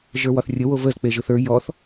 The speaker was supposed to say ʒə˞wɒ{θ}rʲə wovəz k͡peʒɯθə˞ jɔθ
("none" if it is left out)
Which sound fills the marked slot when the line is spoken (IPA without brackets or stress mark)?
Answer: θ